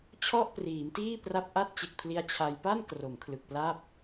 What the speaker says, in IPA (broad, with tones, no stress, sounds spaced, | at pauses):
t͡ɕʰ ɔ˥˩ ʔ p r iː˩˦ m t iː˥˩ p r a˦˥ p̚ ʔ a˦˥ t̚ t͡ɕ e˨˩ k̚ pʰ l i˧ a̯ t͡ɕʰ a˧ j p a˥˩ n k r o˩˦ m kʰ l ɯ˨˩ k̚ p l a˥˩ p̚